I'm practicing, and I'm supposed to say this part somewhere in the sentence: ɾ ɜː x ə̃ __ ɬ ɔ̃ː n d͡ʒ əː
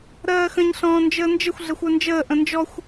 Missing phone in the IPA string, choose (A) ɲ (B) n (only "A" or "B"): A